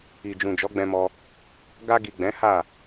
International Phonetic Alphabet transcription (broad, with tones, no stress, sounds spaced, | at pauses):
i˨ d͡ʒ ũ˨ d͡ʒ ɔ˨˦ ɡ͡b ɛ̃˧ m ɔ˧ | ɡ a˧ ɡ i˨ ɡ͡b ɛ̃˨˦ h a˦˨